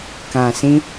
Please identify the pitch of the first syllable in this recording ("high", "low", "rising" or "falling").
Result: low